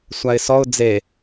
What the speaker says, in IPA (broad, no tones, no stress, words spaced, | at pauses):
sʷaɪ̯sɔʊ̯ d͡ze